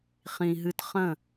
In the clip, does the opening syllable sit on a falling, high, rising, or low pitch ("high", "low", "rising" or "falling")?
low